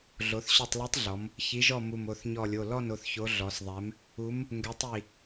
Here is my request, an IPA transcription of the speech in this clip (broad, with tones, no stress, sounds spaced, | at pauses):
ɮ o˩˧ θ ɕ ɔ˧˩ tˤ l u˨˥ tˤ ɮ ɔ˩˧ m | ç i˩˧ ʒ ɔ˧˩ m u˧˩ m o˩˧˩ θ ɲ ɔ˧˩ lʲ o˩˧˩ l ɔ˥˨ n o˩˧ θ ç o˨˥ ɮ ɔ˩˧ s ðˤ ɛ˨˥ m | u˨˥ m | ŋ ɡ ɛ˨˥ tˤ i˧˩